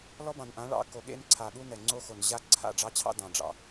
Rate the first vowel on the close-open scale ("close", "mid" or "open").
mid